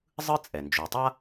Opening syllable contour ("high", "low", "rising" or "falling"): high